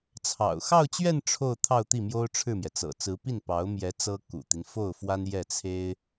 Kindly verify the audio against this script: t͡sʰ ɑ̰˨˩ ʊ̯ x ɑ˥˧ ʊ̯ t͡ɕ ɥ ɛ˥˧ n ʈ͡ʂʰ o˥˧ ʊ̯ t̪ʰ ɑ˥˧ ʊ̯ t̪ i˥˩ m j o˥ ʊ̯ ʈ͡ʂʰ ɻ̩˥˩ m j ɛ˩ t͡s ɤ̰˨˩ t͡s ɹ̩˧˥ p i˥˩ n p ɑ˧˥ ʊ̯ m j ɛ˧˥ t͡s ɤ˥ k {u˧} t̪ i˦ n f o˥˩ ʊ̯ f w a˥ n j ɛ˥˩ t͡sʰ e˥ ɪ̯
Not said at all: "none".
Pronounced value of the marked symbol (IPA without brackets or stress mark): ṵ˨˩